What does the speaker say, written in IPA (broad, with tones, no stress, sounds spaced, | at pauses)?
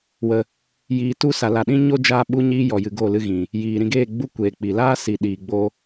w ə˧ | j iː˧ t u˦ s a˨ l a˨ ɗ ĩ˦ ɲ o˦ d͡ʒ aː˦ ɓ u˦ ɲ iː˦ j ɔ˨ j ɨ˨ ɡ o˦˨ l ɨ˦ ɣ ĩ˨ | j iː˨ ɾ ĩ˧ ɡ eː˦˨ ɡ͡b u˦ kʷ eː˨ k͡p i˨ l aː˦ s i˨ ɗ iː˨ ɡ͡b o˦